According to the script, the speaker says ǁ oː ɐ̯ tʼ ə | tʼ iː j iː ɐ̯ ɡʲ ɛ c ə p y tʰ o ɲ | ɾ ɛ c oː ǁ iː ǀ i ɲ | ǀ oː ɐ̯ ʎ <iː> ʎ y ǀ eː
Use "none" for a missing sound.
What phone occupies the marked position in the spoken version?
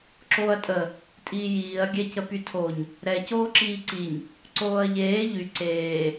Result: eː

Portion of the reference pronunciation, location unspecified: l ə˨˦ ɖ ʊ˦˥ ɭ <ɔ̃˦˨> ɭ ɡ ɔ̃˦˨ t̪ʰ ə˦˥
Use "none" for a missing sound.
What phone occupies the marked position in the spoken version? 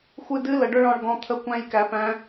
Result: ɔ̃˦˨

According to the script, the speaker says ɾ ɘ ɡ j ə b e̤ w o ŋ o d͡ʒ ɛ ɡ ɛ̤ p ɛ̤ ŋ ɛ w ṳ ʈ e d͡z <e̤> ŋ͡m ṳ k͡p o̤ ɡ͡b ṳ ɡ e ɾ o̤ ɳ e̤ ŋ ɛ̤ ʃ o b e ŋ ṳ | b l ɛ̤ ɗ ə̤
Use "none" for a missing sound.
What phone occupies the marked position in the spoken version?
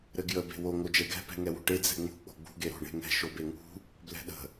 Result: ɛ̤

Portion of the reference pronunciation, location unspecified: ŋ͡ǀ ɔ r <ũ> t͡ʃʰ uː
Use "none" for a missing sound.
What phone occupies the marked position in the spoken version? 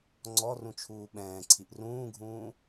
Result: ũ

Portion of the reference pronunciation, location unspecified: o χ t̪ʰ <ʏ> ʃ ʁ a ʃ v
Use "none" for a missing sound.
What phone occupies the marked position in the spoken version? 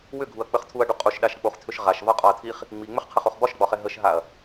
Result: ʏ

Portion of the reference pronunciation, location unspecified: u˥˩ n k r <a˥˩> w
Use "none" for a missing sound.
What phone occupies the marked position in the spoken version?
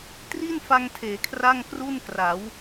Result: a˩˦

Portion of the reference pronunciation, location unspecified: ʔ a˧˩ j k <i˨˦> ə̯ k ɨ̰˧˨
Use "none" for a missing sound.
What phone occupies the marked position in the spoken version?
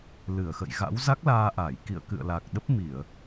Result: ḭ˧˨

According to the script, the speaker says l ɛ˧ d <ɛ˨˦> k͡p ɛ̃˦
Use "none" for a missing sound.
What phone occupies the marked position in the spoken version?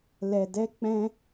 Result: ɛ˦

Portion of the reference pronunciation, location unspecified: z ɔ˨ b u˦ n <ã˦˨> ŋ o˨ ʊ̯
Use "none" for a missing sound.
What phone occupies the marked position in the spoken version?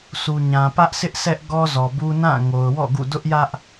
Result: ã˦˨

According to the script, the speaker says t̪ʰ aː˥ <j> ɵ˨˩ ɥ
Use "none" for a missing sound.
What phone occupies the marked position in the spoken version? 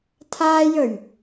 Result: j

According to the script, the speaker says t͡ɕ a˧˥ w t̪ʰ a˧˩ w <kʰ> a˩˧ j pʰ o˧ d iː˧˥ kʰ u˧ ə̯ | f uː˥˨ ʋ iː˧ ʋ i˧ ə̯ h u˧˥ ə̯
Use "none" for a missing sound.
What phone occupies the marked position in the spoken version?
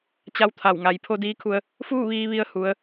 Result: ŋ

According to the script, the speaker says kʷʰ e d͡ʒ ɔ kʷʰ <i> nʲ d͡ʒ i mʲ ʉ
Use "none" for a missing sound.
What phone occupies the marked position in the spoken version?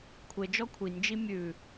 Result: i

